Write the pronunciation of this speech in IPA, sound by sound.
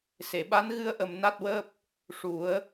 s e˨˩˨ ɓ a˧˥ n ɣ ɨ˧ ə̯ ʔ ə˨˩ m n a˦˥ t̚ w əː˦˥ p̚ | ʂ u˨˩˦ ə̯

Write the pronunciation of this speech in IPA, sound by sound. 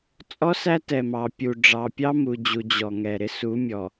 t͡sʼ ɔ˦ s æ˦ t ɛ˨ m ɑ˨ pʲ u˨ ɖ͡ʐ ɑ˨ pʲ ɑ˦ m u˨ d͡ʑ u˨ d͡ʑ ɔ˨ ŋ ɛ˨ ɾ ɪ˦˨ s u˨˦ mʲ ɔ˨

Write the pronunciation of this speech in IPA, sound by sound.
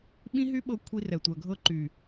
ɓ ĩ˦ ɦ y˦ ɓ ɤ˧ kʷʰ i˧ r ɛ˨ tʷ ɜ˨ ɡʱ ɤ˧ ǃ y˨

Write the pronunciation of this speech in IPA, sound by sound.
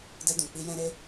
d ɛ˧ d ũ˨ k͡p i˧ j ɛ̃˧ ɾ e˦

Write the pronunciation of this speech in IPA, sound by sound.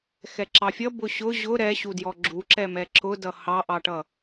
x ɛ ǁ ɑ fʲ ʌ b ʊ ɕ ʊ ʑ ʊ ɾ ɛ ɕ u d j ɔ ɡ͡ǁ u ǁ ɛ m ɛ ǁ ʊ d ʌ h ɑ ʔ ɑ ʈ ʌ

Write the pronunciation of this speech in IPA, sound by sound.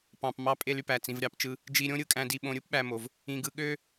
p ɑ̃˩ p m ɑ˧ pʼ e˧ l y˩ p æ˩ t͡s ĩ˩ v ɾʲ ɑ˩ p t͡ʃ ɯ˧ | d͡ʒ i˧ ɾʲ õ˥ ɾʲ ɯ˥ kʼ æ̃˧ d i˧ ɓ õ˧ ɾʲ ɯ˥ p ɓ æ˧ m o˩ v | ĩ˧ ɡ ɯ˧ ɠ ø˥

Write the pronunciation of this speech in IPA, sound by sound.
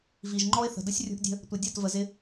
v i˨ ʒ ŋ͡ǃ ɔ˦ ɪ̯ θ ə̤˨ d ə˦ sʲ rʲ ṳ˧ ʔ dʲ ə̤˧ | tʷ ɪ˨ dʲ ɒ˦˨ t v ə˨ z ɪ˧

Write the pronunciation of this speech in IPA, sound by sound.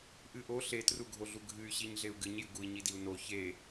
ʔ ɨ ʔ o ɬ e t r u ɡʱ o ɮ u ɡʱ ɨ y̯ ɕ i ɲ ɮ e u̯ ɡ ɨ ɲ j ɨ ɡ u i̯ ɲ i d i u̯ n o ç e

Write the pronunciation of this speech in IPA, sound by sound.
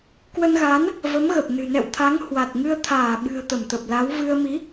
k w ə˧ n ɣ a˨˦ n | v ə˨˦ m ɣ ə˨˩ p̚ n ɨ̤˨˩ n ɛ̰˧˨ w t̪ʰ a˨˦ ŋ h w a˨˩ t̚ ŋ ɨ˧ ə̯ t̪ʰ aː˧˩ ɓ ɨ̤˨˩ ə̯ t̪ ə˧˩ m t̪ ə˨˩ p̚ l a˨˦ w v ɨ˧ ə̯ m i˨˦

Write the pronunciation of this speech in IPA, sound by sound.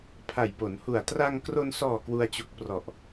pʰ a˨˩ j p o˩˦ n h u˨˩ a̯ t r a˧ ŋ k r o˧ n s ɔː˨˩ k w u˧ a̯ t͡ɕ u˨˩ k̚ p r ɔ˨˩ ʔ

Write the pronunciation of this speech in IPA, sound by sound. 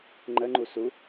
ŋ͡ǃ ə ŋ͡ǃ u s u

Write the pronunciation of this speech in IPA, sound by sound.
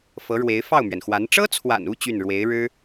f ɤ˧˥ ɻ w e˧˥ ɪ̯ f ɑ˥˩ ʊ̯ m ɥ ɛ˩ n x w a˧˥ n ʈ͡ʂ ɤ˥ t͡sʰ w a̰˨˩ n u˥˧ t͡ɕ y˥˩ n ɻ w e˧˥ ɪ̯ ɻ ɻ̩˥

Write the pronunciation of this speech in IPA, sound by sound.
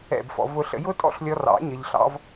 ɛ̰˦˨ b f ɔ̰˧ v ʊ˧ ɬ ə̰˧ j ʊ˦ tʼ ɔ̰˦ ɬ lʲ ɔ˧ r ɑ̰˨˦ ɲ ə˧ ʎ ɬ ɑ̰˦ v

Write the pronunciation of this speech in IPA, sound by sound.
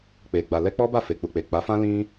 k͡p e˨ ɡ͡b a˨ l ɛ˧ k͡p ɔ˦ b a˦˨ f e˨ k͡p u˨ k͡p e˨ k͡p a˨˦ f ã˦ l ĩ˦

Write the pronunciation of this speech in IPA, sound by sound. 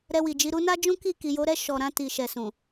ɾ ɛ˧ w i˨ d͡ʒ i˧ ɾ u˦ n a˦ d͡ʒ ũ˦ k i˦˨ k i˨ j o˨˦ ɾ ɛ˦˨ ʃ ɔ˨ ɾ ã˧ t i˨ ʃ ɛ˨ s ũ˨

